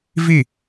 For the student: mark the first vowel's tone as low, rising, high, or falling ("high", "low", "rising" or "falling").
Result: falling